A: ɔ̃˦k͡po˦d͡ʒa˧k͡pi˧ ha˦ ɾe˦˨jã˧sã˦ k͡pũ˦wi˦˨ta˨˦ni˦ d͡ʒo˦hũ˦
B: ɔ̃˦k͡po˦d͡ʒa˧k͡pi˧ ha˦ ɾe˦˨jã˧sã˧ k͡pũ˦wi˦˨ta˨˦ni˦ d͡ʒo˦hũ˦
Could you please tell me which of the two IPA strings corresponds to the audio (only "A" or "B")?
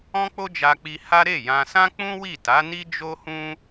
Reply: A